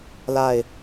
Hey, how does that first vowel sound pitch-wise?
falling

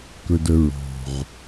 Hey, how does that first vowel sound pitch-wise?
low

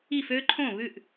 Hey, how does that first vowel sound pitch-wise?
falling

